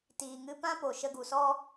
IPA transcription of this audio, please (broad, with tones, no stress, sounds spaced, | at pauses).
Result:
t iː˨ ŋ ɨ˧ p ã˦ p o˨ ʃ ə˧ ɡ u˨ s ɔ˦